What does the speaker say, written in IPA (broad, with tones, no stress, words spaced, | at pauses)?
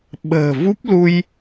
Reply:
ɓə̤ː˨˩vu˦˥p̚lu˧j